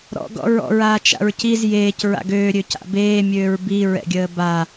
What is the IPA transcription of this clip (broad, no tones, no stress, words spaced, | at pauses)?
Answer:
ɾɔ̰ ɡɔ̰ɹɔ̰ɹaː t͡ʃa̰ɹciz jeːc ɹa̰ɡøːɾʲø ca̰beːmʲøːɹ biɹɛ̰ɡʲəː ba